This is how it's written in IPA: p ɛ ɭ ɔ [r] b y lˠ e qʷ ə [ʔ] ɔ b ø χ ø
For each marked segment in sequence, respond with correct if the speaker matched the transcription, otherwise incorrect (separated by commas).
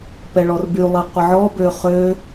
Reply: correct, incorrect